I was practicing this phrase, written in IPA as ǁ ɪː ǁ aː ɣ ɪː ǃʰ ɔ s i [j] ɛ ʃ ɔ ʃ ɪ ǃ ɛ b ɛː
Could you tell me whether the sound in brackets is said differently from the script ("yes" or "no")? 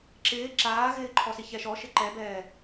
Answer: yes